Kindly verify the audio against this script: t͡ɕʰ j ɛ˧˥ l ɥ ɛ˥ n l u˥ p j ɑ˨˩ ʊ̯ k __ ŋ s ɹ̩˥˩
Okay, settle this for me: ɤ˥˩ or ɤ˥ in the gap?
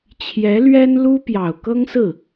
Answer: ɤ˥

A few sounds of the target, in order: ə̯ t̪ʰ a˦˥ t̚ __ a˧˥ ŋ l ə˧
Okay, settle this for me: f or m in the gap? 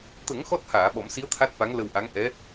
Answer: f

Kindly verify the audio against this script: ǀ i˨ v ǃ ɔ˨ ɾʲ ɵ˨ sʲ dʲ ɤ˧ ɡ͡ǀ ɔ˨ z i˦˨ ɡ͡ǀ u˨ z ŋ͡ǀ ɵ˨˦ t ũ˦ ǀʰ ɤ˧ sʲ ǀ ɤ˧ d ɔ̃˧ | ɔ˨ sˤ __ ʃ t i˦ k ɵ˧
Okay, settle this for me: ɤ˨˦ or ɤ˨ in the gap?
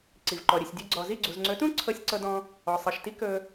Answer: ɤ˨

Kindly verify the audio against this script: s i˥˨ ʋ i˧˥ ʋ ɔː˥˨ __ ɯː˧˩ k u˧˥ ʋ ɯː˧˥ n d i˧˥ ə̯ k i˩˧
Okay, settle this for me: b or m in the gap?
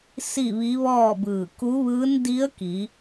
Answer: b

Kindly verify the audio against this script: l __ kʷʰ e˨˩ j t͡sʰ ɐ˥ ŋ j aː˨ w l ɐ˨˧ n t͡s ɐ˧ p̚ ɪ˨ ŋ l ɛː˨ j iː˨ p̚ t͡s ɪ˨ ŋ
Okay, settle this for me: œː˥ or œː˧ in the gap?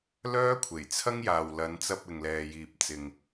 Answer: œː˥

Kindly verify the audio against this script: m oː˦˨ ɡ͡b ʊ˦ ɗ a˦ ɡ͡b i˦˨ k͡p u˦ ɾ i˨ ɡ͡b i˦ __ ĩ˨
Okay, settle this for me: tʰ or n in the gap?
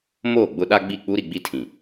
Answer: tʰ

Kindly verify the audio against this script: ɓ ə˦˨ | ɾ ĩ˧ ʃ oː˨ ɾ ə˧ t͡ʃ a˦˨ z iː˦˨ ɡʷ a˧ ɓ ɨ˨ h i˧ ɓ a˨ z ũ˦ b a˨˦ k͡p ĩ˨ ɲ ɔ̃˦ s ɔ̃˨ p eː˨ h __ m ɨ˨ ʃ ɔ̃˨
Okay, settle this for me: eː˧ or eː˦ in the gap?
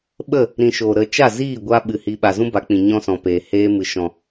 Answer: eː˧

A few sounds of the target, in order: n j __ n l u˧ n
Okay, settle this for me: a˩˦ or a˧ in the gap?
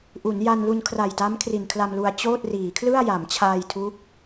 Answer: a˧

